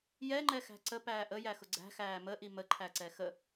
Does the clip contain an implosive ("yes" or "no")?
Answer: no